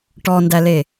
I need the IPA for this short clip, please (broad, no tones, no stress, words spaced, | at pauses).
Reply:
ʈɔndæle